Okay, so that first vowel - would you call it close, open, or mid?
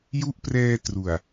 close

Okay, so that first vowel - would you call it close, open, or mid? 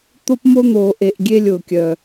mid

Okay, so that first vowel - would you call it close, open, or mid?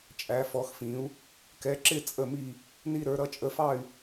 open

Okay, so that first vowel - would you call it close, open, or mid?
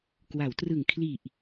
open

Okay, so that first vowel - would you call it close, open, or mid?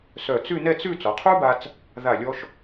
mid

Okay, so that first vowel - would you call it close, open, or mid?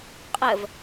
mid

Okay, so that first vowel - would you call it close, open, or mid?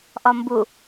open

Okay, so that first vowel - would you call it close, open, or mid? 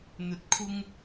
mid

